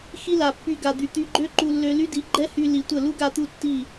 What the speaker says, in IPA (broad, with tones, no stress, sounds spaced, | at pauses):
x i˦ l a˨ pː y˧ ɡ a˨ d̪ y˨ t̪ y˧ ɡ͡ǃ ø˦ ǃ u˧ lː ø˧ l y˦ d i˨˦ ɡ͡ǃ ɛ˦ h y˧ l i˨ tʷ ə˦˨ l u˦ ɡ a˧ t̪ u˧ tː i˦˨